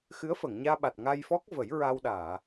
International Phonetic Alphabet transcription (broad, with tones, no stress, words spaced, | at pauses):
xɨ˧˥ə̯fə˨˩˨ŋɲaː˧ɓa˨˩t̚ ŋa˧jfɔ˦˥k̚ və˨˩˦jɹa˧wɗaː˨˩˨